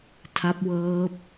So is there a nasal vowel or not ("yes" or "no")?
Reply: no